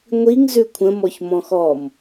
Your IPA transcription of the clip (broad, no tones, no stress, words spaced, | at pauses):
ŋʷiŋ zʉkʷʰə̃ mɔçmɔ̃xɔm